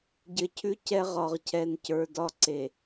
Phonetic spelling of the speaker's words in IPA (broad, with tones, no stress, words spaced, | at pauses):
ɟɘ˨cʰʉ˦ cɛ˦ʁɒ˨ʁcʰɛ˨ncə˞˨ dɒ˦ǀe˨